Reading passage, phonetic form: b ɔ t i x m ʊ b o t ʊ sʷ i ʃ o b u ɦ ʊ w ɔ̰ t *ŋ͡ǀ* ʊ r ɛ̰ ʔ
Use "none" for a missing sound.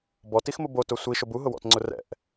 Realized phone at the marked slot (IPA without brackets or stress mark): ŋ͡ǀ